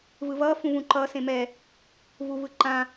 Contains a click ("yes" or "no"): yes